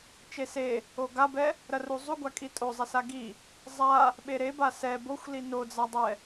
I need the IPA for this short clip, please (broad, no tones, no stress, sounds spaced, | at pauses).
t͡ʃ e s e | o ɡ a b ɛ | ɾ ɐ r u zˤ u ɡʷ a kʼ i tʼ o zˤ ɛ s a ɡ i | zˤ a | ɓ e ɾ e b a s ɛ b o xʷ l i n o d͡z a dˤ ɛ